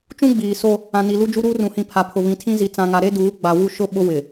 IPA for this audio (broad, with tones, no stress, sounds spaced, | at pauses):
t͡ʃ ũ˦ ɡ͡b iː˨ s o˦ | ã˨ n i˨ l u˦ d͡ʒ u˦ ɾ uː˦ r ũ˨ h ĩ˨ pʰ a˨ pʰ ʊ˨ β ĩ˨ tʰ ĩ˦ z i˨ t͡s ã˨ ŋ a˨ ɾ e˦ d uː˨˦ ɡ͡b a˨ w u˦˨ ʃ ʊ˦ ɓ ʊ˦ w ɪ˨